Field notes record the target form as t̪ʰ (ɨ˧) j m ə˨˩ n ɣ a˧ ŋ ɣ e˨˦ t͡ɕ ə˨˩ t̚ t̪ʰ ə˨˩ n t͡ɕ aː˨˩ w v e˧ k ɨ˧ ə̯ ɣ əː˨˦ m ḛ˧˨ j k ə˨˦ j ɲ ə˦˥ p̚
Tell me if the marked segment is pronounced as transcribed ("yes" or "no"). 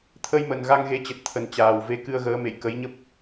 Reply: no